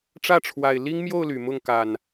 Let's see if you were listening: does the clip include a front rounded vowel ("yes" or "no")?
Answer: yes